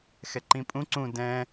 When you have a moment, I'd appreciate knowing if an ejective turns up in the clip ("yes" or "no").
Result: yes